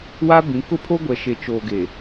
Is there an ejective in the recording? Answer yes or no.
no